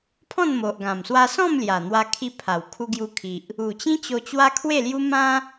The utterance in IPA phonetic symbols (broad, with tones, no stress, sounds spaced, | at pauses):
pʰ ɔ̃˥˧ n m o˨ ʔ ɡ ã˨˩ m s w a˧ s ɔ̃˥˧ m l j a˨˩ n̪ w a˧ kʰ i˧ pʰ a˨˩ w kʰ u˧ ɡ j u˧ kʰ i˨ ʔ | u˨˩ t͡ɕ ĩ˦ t͡ɕ o˧ t͡ɕ w a˦ kʰ w e˥˧ l j u˦ m ã˦